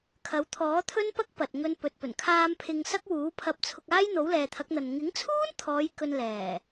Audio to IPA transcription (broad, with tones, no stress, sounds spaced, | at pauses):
kʰ ɐ˨˥ w t̪ʰ ɔː˨˥ t̪ʰ ɵ˥ n p ɐ˥ k̚ p ɐ˨ t̚ ŋ ɵ˧ n p ɵ˨ t̚ p ɵ˨˩ n kʰ aː˧ m pʰ ɪ˧ ŋ s ɐ˥ k̚ w uː˨˥ pʰ ɐ˧ p̚ t͡sʰ ʊ˧ k̚ aː˥ j n̪ o˨˥ w l ɛː˨ t̪ʰ ɐ˨˥ k̚ n̪ ɐ˨ n ŋ ɪ˨˥ ŋ t͡sʰ uː˥ n t̪ʰ ɔː˨˧ j k ɵ˧ n l ɛː˨˩